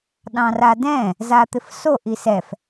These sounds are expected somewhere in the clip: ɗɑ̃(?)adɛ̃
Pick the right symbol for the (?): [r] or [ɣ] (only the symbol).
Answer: r